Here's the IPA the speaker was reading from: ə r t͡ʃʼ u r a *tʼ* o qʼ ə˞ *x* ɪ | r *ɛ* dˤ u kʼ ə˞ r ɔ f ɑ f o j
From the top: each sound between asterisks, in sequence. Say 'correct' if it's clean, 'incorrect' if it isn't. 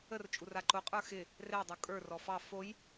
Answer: incorrect, correct, correct

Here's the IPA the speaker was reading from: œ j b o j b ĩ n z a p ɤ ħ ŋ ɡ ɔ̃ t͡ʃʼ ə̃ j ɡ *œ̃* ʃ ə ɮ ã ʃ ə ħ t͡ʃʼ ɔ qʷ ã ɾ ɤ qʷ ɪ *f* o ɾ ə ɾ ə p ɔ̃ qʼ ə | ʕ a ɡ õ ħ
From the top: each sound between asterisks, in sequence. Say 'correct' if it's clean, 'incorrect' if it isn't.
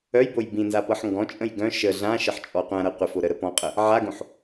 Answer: correct, correct

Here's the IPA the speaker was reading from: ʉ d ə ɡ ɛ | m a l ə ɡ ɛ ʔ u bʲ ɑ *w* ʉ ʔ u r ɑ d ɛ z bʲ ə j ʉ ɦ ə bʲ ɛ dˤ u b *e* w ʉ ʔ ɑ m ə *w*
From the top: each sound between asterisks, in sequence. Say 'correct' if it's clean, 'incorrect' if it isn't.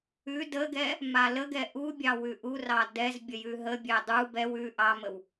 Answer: correct, incorrect, correct

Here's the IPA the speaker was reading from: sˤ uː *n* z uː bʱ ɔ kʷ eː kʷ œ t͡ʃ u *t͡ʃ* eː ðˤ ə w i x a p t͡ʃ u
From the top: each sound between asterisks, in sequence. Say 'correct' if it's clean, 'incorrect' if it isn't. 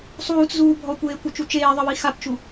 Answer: incorrect, correct

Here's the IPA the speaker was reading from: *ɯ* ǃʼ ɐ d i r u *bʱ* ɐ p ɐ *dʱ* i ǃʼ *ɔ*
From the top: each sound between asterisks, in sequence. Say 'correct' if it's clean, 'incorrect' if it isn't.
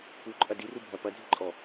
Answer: incorrect, correct, correct, correct

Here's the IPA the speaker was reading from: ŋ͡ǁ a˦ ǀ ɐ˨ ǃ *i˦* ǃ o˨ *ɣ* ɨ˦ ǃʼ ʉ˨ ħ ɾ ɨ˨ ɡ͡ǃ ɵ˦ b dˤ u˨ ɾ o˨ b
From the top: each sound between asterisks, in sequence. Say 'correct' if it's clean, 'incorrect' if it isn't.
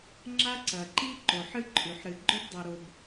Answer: correct, incorrect

